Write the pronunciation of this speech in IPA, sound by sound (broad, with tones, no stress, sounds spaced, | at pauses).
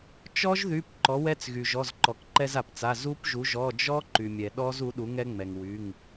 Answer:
t͡ʃ ɔ˦˥ ʒ ð y˩˧˩ p ǃ ɔ˩˥ w ɛ˦˥ t͡s ɣ y˩ ʒ ɔ˩˧˩ z ǃ ɔ˩ k ǃ ɛ˧ z a˩ p t͡s a˩˧˩ z u˦˥ p ʒ u˩˥ ʒ ɔ˩˧˩ d͡ʒ ɔ˦˥ ǃ y˩ mʲ ɛ˩ ɗ ɔ˦˥ z u˩˥ ɗ u˩˥ ŋ ɛ˦˥ ŋ͡m ɛ˩ ŋ w y˩˧˩ ŋ